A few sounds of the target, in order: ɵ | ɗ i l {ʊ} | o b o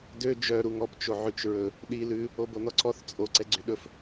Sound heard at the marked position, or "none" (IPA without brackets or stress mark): ʉ